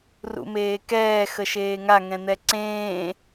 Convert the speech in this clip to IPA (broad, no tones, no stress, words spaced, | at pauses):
rṵmeːkɛː xəʃeːŋa ŋɛ̃n̪ɛǀẽː